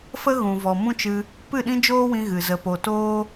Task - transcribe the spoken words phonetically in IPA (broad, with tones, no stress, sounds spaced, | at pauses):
f ə˦ ɣ ũ˨ v ɔ˨ m ũ˦ t͡ʃ ɨ˧ | p ɨ˦˨ ɗ ĩ˦ d͡ʒ oː˦ w ĩ˧ ɣ ɨ˨ z ə˧ p o˧ t oː˦